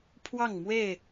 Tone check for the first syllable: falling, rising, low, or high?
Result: falling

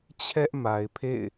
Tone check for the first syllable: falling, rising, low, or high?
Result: high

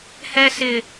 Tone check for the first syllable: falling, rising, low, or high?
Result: high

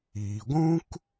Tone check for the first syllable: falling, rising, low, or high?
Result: low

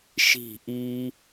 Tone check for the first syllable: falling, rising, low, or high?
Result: falling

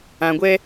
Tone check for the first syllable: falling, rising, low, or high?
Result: low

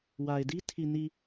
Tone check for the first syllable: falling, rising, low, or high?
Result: low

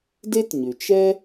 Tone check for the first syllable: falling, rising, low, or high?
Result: high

